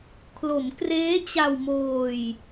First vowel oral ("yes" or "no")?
yes